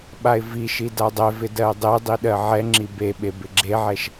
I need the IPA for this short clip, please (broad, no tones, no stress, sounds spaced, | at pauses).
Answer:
ɓ a ɪ̯ v i ʃ i d a dˤ ɛ v ɪ d ɜ dˤ e dˤ i ɗ ɜ ʕ ɛ ŋ͡ǁ i b e ɓ e b ɪ ɡ͡ǁ e ʕ ɛ ʃ